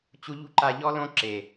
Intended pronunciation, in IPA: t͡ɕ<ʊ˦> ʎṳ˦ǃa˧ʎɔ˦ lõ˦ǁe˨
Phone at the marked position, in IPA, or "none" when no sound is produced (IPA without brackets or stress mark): u˦